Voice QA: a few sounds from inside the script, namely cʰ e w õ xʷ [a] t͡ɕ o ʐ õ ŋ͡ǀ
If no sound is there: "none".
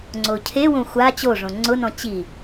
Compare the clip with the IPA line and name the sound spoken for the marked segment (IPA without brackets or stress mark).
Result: a